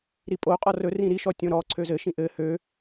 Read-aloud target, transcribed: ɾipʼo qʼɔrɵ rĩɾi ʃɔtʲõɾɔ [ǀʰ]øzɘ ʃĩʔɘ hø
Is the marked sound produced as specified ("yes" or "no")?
yes